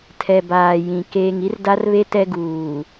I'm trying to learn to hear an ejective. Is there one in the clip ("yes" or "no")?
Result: no